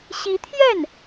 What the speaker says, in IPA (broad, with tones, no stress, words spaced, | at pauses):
ɕi˧˥t̪ʰjɛ˥˩n